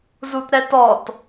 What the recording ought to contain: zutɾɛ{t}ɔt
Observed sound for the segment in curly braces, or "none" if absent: t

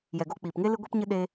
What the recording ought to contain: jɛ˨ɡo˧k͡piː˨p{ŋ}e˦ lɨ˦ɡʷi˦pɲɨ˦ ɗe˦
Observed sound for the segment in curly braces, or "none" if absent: ŋ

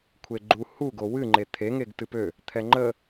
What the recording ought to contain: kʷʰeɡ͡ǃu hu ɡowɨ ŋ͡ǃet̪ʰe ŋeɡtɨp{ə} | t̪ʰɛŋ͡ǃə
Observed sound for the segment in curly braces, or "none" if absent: ø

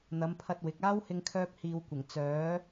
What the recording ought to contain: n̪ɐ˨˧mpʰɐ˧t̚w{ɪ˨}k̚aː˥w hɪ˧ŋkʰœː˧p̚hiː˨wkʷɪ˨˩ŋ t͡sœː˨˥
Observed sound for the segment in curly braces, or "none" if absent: ɪ˨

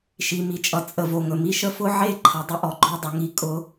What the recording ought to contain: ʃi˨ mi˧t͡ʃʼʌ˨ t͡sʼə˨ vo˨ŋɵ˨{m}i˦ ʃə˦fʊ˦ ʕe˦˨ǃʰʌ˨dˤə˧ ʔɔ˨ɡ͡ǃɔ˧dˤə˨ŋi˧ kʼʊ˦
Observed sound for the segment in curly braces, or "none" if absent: m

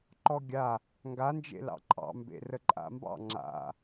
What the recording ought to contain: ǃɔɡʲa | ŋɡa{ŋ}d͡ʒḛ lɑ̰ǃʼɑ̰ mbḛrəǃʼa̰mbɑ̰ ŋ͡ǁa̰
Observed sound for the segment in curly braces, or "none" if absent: n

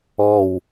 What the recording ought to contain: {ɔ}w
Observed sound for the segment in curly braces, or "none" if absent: ɔ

